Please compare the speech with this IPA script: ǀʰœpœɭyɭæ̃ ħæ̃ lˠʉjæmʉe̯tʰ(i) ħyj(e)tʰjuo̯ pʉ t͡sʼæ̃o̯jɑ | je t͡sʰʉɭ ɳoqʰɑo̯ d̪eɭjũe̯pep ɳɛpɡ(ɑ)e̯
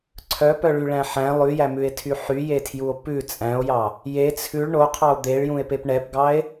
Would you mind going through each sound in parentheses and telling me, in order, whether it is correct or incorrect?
incorrect, correct, correct

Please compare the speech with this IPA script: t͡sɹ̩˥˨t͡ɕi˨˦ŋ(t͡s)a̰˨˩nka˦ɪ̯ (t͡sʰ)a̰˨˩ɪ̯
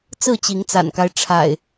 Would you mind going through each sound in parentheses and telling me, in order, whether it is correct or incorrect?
correct, incorrect

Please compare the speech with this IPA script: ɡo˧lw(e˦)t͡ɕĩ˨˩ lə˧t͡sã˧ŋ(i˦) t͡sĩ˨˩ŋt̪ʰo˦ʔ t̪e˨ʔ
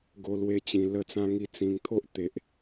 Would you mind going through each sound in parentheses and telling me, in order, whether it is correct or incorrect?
incorrect, incorrect

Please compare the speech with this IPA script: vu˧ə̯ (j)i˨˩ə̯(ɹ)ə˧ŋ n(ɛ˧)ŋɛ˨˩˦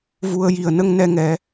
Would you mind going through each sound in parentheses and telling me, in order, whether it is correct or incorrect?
correct, incorrect, correct

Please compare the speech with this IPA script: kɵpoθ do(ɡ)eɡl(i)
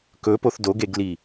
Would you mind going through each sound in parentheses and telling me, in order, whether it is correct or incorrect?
correct, correct

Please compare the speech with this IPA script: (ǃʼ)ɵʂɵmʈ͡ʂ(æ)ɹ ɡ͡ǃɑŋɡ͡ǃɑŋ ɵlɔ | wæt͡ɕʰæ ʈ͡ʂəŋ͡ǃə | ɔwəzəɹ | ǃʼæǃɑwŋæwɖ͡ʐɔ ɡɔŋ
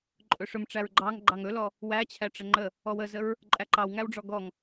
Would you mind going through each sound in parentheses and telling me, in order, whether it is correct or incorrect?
correct, correct

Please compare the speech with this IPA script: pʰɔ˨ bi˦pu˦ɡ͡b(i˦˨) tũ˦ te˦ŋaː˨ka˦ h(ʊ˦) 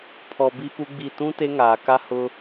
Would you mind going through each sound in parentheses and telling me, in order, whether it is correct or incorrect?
correct, correct

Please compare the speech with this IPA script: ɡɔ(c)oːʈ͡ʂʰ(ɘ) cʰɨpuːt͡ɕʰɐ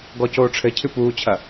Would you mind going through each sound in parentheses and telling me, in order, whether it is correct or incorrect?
correct, correct

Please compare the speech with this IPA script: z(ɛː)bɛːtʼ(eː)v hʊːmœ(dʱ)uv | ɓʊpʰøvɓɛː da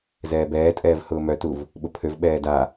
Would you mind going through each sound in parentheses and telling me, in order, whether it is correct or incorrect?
correct, incorrect, incorrect

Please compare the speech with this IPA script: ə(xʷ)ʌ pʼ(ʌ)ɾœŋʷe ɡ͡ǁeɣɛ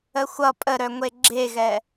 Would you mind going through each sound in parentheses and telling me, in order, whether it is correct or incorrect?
correct, incorrect

